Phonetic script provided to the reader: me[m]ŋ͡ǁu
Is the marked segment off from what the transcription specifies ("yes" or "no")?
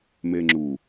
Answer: yes